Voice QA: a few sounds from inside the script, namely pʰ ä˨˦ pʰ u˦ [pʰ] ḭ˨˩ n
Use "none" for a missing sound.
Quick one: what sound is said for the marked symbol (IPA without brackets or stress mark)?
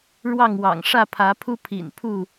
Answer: pʰ